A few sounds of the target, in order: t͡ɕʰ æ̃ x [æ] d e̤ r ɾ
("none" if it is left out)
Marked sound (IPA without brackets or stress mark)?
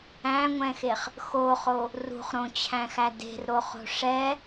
æ